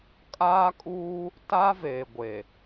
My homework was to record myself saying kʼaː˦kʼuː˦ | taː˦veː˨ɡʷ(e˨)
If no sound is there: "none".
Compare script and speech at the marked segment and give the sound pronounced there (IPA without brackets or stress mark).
e˨